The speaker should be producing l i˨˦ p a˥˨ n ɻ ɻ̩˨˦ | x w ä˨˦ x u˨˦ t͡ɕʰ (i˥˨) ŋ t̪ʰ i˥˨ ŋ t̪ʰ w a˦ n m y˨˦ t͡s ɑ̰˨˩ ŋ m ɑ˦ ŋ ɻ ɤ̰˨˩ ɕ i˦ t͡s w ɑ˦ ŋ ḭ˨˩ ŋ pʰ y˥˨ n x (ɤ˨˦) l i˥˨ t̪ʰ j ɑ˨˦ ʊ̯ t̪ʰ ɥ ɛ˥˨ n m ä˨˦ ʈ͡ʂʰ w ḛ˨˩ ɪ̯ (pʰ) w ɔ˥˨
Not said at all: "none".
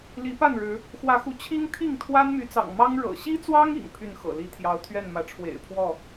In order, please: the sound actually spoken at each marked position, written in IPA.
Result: i˦, ɤ̰˨˩, pʰ

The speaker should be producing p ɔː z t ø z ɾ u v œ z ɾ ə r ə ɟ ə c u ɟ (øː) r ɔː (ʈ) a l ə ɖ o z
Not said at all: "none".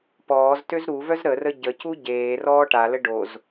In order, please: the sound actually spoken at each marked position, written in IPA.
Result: eː, ʈ

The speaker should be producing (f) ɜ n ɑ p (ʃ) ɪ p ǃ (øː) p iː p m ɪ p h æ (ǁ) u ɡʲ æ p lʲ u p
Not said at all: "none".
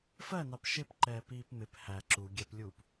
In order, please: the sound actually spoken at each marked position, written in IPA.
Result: f, ʃ, ɛː, ǁ

